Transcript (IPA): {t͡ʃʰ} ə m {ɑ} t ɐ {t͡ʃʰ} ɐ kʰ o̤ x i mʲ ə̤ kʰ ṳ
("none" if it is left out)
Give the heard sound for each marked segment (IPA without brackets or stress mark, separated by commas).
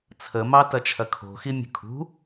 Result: t͡sʰ, ɑ, t͡ʃʰ